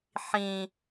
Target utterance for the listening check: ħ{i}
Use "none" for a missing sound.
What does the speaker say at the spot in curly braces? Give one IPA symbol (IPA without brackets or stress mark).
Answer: ĩ